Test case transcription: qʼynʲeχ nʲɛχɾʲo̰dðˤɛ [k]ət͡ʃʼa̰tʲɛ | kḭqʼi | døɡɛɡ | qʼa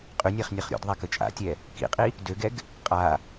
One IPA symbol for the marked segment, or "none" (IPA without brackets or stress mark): k